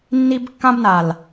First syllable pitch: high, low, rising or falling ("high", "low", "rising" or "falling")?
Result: high